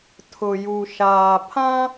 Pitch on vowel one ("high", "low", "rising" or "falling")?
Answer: low